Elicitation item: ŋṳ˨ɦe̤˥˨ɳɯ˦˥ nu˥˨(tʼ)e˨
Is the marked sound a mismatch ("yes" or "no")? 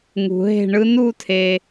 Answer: yes